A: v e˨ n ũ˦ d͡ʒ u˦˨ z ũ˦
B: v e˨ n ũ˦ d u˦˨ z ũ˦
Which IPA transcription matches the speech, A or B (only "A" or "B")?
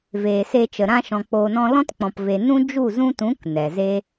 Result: A